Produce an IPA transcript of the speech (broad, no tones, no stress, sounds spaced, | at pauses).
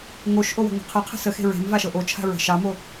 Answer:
ŋ o ʃ ʔ o w ə̤ ŋʷ ə̤ qʰ ə qʰ ə̤ s ə x e̤ ɹ e̤ m v a ʃ ɤ ʔ o t͡ʃʰ a̤ ɹ ə̤ ʃ ɑ m o